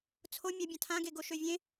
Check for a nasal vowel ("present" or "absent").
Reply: present